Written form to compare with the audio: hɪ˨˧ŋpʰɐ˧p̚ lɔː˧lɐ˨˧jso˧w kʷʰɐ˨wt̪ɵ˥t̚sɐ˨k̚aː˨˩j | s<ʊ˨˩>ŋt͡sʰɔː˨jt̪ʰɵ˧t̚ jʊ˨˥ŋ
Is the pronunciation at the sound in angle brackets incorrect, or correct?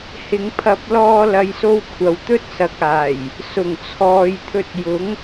correct